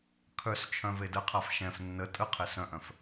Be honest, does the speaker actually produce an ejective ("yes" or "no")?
yes